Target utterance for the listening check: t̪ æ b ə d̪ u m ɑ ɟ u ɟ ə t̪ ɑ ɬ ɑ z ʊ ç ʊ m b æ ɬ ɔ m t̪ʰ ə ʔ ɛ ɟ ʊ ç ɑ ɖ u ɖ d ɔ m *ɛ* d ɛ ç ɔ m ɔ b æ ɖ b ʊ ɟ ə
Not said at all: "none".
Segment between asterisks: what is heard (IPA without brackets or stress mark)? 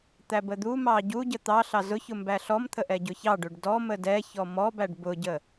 ə